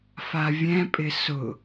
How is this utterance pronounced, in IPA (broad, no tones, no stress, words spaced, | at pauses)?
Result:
favʲɛ̃pʼɪ sʊ